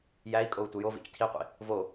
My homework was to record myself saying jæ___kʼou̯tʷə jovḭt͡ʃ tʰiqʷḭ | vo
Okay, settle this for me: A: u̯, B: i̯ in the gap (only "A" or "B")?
B